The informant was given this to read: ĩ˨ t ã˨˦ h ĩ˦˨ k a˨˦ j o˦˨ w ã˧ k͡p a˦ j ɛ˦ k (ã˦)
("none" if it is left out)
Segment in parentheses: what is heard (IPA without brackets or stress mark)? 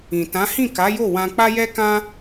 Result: ã˦